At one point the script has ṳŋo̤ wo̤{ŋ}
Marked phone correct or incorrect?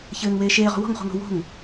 correct